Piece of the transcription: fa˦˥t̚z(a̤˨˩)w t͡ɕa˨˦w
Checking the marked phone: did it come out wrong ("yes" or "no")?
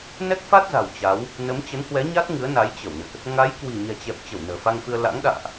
no